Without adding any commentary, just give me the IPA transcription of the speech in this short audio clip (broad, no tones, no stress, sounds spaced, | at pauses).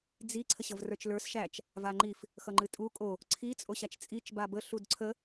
d͡z i ǀʰ ə ɕ ʌ v r ə˞ t͡ʃ l ə˞ s ʃ æ t͡ʃ | v a ŋ͡ǃ i f | x ʌ ŋ͡ǃ ɨ tʼ u kʼ o | ǀʰ i t͡sʼ o ɕ a t͡ʃ t͡sʼ i t͡ʃ b a b ə ɬ u d ǀʰ ə